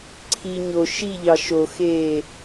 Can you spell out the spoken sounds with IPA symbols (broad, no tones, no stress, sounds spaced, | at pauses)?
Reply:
ǀʰ i ɲ o ʃ i ʎ ɑ ʃ o x eː